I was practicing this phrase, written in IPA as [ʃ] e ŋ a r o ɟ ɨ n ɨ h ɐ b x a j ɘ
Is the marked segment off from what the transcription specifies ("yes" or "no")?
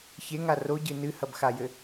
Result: yes